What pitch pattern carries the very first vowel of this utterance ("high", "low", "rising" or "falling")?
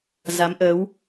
rising